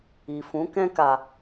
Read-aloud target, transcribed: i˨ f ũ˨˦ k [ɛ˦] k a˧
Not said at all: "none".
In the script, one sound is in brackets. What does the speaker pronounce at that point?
ɛ̃˦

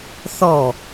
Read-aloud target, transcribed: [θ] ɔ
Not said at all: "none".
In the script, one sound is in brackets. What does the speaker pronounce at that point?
θ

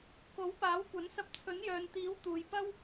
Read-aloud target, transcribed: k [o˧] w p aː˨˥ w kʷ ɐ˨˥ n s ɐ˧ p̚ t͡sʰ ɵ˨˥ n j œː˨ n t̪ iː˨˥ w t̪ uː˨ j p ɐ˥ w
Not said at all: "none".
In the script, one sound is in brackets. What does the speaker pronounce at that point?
o˨˥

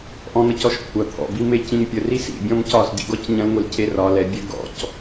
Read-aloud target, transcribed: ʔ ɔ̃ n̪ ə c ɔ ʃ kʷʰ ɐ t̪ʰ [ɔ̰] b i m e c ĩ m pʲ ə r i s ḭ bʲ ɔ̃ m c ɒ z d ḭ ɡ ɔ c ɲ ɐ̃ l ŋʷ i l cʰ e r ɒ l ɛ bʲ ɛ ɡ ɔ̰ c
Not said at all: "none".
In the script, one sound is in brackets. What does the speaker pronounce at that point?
ɔ̰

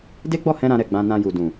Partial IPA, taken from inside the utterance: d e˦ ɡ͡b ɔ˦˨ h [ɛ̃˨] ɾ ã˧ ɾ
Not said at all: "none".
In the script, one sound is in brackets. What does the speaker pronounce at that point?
ɛ̃˧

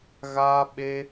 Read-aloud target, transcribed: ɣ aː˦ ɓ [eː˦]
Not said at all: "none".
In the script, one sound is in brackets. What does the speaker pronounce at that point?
e˦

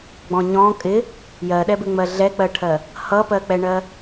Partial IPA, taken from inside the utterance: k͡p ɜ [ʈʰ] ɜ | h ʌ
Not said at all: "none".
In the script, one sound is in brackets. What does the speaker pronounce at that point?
ʈʰ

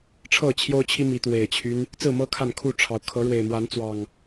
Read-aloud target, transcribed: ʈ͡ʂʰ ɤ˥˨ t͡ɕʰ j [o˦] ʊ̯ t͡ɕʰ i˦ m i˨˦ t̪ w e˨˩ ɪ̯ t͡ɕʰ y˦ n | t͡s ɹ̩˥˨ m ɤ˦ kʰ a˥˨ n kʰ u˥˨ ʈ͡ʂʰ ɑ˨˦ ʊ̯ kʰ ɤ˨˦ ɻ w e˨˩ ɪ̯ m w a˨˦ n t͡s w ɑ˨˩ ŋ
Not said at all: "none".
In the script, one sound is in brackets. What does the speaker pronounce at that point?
o˦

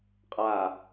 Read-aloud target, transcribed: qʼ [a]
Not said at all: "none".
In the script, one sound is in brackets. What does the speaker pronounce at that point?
a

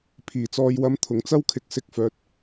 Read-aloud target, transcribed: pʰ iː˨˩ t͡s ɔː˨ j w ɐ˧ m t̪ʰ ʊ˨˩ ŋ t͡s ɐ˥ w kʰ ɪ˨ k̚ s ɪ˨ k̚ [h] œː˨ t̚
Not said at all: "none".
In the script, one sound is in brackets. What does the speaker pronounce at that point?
f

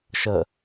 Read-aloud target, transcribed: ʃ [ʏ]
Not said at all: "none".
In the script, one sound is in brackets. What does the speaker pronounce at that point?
ə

